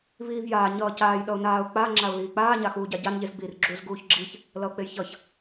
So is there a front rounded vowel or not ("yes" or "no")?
no